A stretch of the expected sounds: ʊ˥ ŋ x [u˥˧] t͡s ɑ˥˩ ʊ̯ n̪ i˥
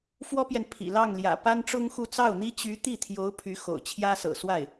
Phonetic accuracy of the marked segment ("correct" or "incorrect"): correct